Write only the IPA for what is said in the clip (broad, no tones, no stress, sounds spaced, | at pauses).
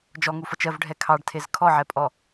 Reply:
d͡ʒ ɔ ŋ u f ʌ t͡ʃ ɜ v ɖʱ ɛ kʰ ɑ ɖ tʰ e z kʰ ɔ ʕ ɛ pʼ ɔ